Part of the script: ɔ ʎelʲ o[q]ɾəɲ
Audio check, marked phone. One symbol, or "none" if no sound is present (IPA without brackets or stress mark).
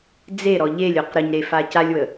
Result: q